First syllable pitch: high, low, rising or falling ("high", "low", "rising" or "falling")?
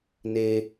low